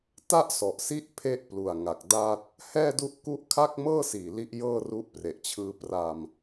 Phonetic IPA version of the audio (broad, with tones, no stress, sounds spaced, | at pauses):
t a˥˩ ʔ s ɔ˨˩ ʔ s i˦˥ ʔ pʰ e˥˩ ʔ p l u˨˩ a̯ ŋ a˨˩ k̚ d a˥˩ t̚ | h ɛː˥˩ d u˦˥ ʔ k u˥˩ ʔ kʰ a˥˩ k̚ m ɤː˥˩ s iː˨˩ l i˦˥ ʔ j ɤː˥˩ r u˦˥ ʔ p r e˨˩ ʔ t͡ɕʰ ɯː˧ p r a˧ m